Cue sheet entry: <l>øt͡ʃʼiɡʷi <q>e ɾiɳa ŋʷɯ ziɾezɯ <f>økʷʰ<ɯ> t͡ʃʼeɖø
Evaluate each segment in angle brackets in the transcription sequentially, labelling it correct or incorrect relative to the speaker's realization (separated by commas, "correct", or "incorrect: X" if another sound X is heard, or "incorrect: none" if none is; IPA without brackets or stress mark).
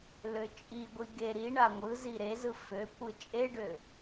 correct, incorrect: ɡ, correct, correct